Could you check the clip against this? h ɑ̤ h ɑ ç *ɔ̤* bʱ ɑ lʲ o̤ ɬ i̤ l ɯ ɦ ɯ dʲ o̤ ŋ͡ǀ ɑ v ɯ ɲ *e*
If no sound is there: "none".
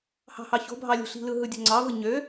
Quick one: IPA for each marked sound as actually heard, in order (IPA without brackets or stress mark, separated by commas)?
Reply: o̤, ø